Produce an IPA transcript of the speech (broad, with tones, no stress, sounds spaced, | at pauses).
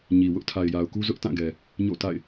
ɲ i˨ w ʊ˦ ʔ tʰ a˨ ɪ̯ j a˨ ʊ̯ k u˦ z ʊ˦ ʔ t ã˦˨ ɡ ɛ˨ | ɲ o̰˦˨ t a̰˦˨ ɪ̯